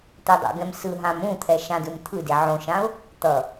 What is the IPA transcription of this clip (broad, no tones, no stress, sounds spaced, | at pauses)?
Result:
t̪ e dˤ o̰ ɡ ɛ̃ m s ɯ ɦ ã m ũ t̪ʰ ɛ ʃ ã d ɯ m t̪ʰ ɯ d e ʕ õ ʃ ã ʊ̯ | t̪ ʌ